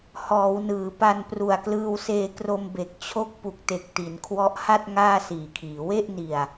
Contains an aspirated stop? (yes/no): yes